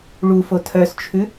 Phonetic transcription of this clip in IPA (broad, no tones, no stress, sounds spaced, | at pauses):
ɭ u f o tʰ œ s t͡ʃʰ ʉ